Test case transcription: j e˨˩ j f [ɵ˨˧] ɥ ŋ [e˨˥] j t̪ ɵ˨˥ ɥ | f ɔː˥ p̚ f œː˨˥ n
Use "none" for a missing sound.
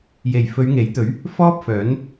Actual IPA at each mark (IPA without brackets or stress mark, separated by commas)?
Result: ɵ˨˧, e˨˥